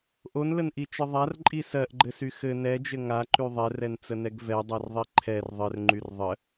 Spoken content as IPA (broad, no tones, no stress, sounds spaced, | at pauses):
ʔ o n l ə n ʔ i t͡ʃ ə ðˤ a r ǃʼ i s ɜ ʔ ɡ͡ǃ ɘ s y x ɘ n ɛ d͡ʒ ɘ ŋ a ǃ y ðˤ ɛ r ɛ n t͡s ə n ɛ ɡ v ɛ dˤ ɜ r ðˤ i ǃʰ ɛ r ðˤ ɘ r ŋ͡ǃ y r ðˤ ə